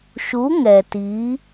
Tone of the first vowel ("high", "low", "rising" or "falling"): rising